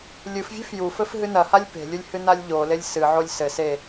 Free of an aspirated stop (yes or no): yes